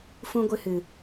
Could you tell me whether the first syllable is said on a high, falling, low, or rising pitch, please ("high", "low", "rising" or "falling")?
high